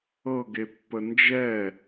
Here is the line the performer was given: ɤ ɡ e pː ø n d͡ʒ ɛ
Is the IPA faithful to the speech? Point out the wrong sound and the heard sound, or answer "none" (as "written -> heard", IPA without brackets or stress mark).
ø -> ə